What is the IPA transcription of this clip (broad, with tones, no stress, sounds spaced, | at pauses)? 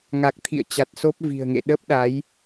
ŋ a˨˩ k̚ t̪ʰ ḭ˧˨ ə̯ t͡ɕ a˨˩ t̚ s o˦˥ p̚ v i̤˨˩ ə̯ ŋ ḛ˧˨ ɗ ə˦˥ p̚ ɗ a˨˦ j